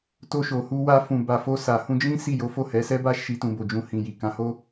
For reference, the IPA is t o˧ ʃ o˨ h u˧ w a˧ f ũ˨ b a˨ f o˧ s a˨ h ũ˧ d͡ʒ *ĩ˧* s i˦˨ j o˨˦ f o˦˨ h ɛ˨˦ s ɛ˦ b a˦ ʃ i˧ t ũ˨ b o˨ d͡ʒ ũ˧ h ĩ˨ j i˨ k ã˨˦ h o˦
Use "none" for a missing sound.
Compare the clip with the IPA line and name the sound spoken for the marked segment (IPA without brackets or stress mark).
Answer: ĩ˦